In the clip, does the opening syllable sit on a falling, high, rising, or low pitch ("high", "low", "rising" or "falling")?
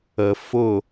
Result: low